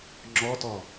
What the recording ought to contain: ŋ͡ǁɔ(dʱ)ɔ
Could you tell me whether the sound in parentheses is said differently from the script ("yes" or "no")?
yes